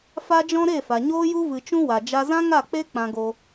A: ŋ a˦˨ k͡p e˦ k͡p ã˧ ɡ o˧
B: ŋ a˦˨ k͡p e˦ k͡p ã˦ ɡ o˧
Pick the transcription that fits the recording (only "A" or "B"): A